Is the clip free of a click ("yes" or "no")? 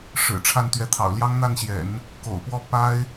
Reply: yes